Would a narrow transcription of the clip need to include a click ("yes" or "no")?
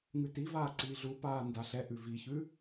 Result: yes